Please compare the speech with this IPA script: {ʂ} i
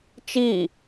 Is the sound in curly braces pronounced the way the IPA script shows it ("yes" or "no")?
no